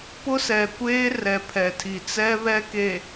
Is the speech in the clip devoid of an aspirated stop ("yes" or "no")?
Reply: no